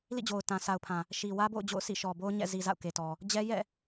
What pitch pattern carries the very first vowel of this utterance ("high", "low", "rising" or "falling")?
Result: falling